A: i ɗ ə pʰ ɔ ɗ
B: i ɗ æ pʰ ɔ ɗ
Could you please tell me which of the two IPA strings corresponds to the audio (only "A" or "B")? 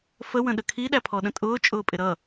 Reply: B